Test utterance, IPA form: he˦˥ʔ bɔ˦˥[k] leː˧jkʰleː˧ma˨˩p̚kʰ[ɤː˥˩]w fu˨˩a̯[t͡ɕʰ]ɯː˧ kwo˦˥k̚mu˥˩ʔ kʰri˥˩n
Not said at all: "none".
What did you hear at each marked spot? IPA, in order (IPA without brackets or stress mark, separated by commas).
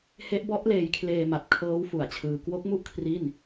ʔ, ɤː˦˥, t͡ɕʰ